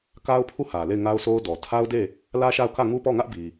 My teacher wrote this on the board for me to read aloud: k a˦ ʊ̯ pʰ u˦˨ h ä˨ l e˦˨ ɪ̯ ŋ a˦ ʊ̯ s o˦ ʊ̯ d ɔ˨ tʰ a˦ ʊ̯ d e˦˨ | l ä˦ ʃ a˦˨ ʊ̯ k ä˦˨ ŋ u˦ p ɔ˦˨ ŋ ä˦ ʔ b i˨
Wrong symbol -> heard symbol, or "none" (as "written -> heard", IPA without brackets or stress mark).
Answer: none